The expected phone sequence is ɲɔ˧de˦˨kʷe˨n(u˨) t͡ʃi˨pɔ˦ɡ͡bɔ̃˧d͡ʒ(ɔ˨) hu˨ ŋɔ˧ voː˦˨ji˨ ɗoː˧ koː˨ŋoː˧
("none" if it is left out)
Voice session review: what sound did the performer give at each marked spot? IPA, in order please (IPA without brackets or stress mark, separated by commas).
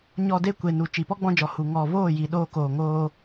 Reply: u˨, ɔ˨